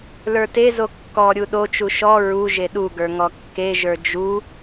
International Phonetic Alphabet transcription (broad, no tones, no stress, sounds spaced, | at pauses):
l ə˞ t e z o kː ɔ ɾʲ u ɗ o t͡ʃ u ʃ ɔ ɹ u ʒ e ɗ u ɡ ə˞ ŋ ɔ kː e ʒ ə˞ d͡ʒ u